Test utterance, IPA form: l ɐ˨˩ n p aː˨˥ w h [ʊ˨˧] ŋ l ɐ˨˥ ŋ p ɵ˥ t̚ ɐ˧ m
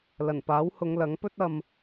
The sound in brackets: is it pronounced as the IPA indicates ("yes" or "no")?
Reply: yes